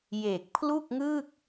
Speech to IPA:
je˨˩k̚pʰlu˥˩k̚ŋɯ˥˩k̚

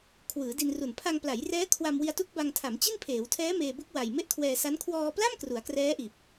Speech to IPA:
kʰwɯː˩˦di˧nru˨˩n pʰa˧ŋpla˩˦jrɛː˦˥ kʰwa˧mwi˧a̯tu˦˥k̚ba˧ŋ tʰa˩˦mt͡ɕi˥˩npʰeː˩˦wtʰɛː˦˥ meː˧bu˦˥k̚ wa˨˩j me˥˩ʔkʰwɛː˧sa˦˥n kʰwɔː˧pla˥˩m kru˩˦a̯krɛː˦˥ʔiː˨˩p̚

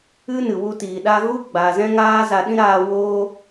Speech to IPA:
ɨ˧ nɨ˨wu˧tiː˨ɗa˦ ɣu˦ɡ͡ba˨ zɛ̃˦ŋaː˦za˧ ɗĩ˦ɾaː˧woː˦

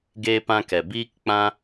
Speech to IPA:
ɡeː˧pã˧kɛ˨ biː˧kk͡pã˧

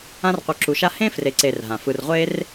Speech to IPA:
ã˦rqʷɯ˨ǁu˨ʃa˦ hẽ˥ fre˨ǀe˨rɦã˩ fɯ˨rʁʷe˥r

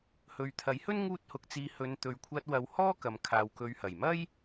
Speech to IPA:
hɵ˨ɥt̪ʰɐ˨˥jhɵ˥n ŋuː˥t̚hʊ˧k̚t͡siː˧ hɵ˨˧nt̪ɵ˨ɥkʷʰɐ˧t̚ wɐ˨˧whɔː˥ kɐ˨mkʰaː˨wkɵ˨˧ɥhɐ˨˩j mɐ˥j

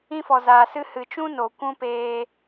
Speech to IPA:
ĩ˦fɔ˨zaː˨sɨ˦ hɨ˨t͡ʃũ˦ no˨ kʷũ˦peː˧

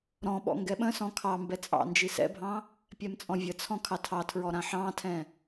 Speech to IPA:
ɾɔ̃ɓɔ̰ ŋɡɛɓə̃sɔ̃ kʰɑmbɛ t͡sʼɑ̰nd͡ʒi sɛ̰bʱɑ̃ | pʲɛmt͡sʼɔ̃vʲət͡sʰɔ̃ kʰɑtʰɑtʰɹɔ ɾãħɑ̃tʰɛ̃

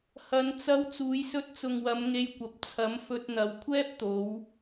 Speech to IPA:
hɐ˨˧nt͡sɐ˧w t͡suː˨˧jsɵ˧t̚t͡sʊ˨ŋwɐ˨˧m ŋe˧jkʷɐ˨p̚ t͡sʰɐ˨˥mfɵ˧t̚n̪ɐ˨˧w kʷʰɛː˥p̚t̪o˨˧w

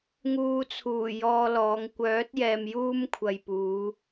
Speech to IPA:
ŋuː˨t͡sʰuː˨˩ jɔː˧lɔː˨˧ŋ kʷœː˨˥t̚ jɛː˧mjuː˥m kʷʰɐ˨jpuː˨˧

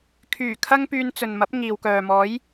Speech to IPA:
kʰyː˨˩ kʰɐ˥ŋpyː˧n t͡sɵ˨nmɐ˨˥p̚ ŋiː˨wkœː˨ mɔː˨˥j

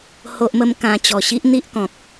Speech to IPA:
ho˦ʔmə˦mkã˧ t͡ɕɔ˨˩ɕi˦ʔ n̪i˦ʔkɔ̃˨k̚

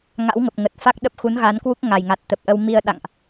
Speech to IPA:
ŋa̰˧˥wŋə˨˩p̚ ŋə˨˩t̚fa˦˥k̚ɗə˦˥p̚ xu˨˦nɣa˨˦nkwu˦˥k̚ ŋa˨˩jŋa˨˩t̚t̪ə˨˩p̚ʔə˧w mi˧ə̯ɗa̰˧˨ŋʔ

